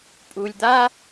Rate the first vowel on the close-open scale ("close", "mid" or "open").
close